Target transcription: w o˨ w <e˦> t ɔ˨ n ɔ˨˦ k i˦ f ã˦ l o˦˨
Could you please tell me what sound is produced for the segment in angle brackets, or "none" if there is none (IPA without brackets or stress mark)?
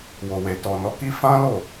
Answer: e˨